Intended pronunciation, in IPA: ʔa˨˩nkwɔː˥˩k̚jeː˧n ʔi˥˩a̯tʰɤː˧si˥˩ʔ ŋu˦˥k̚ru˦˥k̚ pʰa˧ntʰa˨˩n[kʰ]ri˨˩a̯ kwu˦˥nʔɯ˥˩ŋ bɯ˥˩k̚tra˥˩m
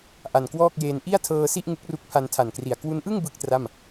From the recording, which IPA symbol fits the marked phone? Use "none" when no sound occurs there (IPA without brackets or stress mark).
k